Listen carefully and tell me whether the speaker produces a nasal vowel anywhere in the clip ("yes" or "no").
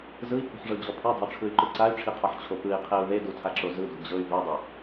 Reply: no